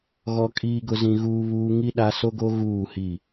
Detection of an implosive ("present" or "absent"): present